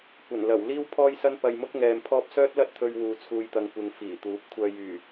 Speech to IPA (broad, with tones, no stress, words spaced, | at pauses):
kʷɐ˨˩nlɐ˨˩w liː˥wpʰɔː˥jsɐ˥n pɐ˧jmʊ˥k̚ ŋɛː˧mpʰɔː˥p̚ sœː˥t̚lɐ˥t̚t̪ʰɵ˧ɥ wuː˨˧t͡sʰuː˧jt̪ɐ˧ŋ kʷɪ˧ŋ fiː˨˩t̪uː˨˥p̚ kʷʰœː˧jyː˨˩